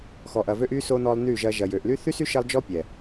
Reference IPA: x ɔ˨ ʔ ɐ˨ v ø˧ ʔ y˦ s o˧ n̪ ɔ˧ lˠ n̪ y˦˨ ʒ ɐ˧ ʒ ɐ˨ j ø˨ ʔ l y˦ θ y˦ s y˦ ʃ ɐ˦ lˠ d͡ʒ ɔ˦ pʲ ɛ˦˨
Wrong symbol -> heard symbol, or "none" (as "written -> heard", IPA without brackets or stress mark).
ɛ˦˨ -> ɛ˨